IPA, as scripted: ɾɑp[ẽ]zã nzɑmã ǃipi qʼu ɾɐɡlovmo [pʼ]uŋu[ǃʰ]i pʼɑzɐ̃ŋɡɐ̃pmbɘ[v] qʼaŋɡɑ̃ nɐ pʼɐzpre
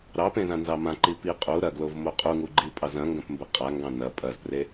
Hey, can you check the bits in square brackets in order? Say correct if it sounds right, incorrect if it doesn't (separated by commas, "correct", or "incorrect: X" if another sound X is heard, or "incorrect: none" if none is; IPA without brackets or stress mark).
correct, incorrect: qʼ, incorrect: ɡ͡ǃ, incorrect: none